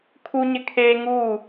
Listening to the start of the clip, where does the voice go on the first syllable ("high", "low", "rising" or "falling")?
high